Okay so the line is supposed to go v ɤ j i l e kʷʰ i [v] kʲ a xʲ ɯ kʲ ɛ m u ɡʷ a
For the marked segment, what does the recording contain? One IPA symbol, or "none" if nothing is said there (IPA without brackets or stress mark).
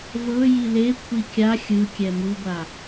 none